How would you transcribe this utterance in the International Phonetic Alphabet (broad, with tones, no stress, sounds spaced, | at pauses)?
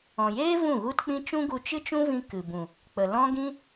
ɔ̃˨ j eː˦ v ũ˦˨ ɣ u˦ t k͡p ĩ˦ t͡ʃ ũ˦ ɡ u˧ t͡ʃ ɨ˦ t͡ʃ ũ˦ v ĩ˧ k ɨ˨ b ũ˨ | k͡p ə˨ l ɔ̃˦ ɡ ĩ˦